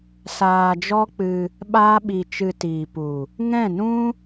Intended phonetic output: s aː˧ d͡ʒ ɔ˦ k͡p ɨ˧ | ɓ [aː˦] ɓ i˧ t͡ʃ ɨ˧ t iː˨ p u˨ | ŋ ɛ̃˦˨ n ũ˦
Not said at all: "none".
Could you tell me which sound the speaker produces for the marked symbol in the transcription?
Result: aː˦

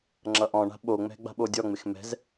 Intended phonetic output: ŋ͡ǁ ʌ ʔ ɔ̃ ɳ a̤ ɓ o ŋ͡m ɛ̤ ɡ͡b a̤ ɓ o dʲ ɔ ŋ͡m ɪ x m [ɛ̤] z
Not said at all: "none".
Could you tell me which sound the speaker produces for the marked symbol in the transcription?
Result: ɛ̤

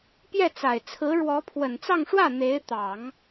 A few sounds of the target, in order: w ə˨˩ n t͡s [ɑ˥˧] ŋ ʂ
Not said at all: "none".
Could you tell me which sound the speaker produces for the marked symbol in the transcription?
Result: ɑ˥˧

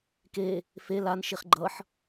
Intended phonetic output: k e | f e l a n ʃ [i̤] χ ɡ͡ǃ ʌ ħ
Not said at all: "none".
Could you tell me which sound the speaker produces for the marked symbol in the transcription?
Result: i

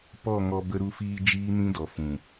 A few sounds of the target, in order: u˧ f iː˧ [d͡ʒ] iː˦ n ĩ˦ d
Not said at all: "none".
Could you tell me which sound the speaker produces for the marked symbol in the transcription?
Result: d͡ʒ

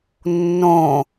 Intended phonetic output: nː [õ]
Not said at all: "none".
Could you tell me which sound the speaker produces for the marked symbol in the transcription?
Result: õ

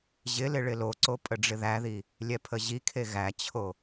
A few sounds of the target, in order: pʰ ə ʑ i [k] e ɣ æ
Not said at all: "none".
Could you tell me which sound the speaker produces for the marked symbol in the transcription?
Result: kʰ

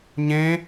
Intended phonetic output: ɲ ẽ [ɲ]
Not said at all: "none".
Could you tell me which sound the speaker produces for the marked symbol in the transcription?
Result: none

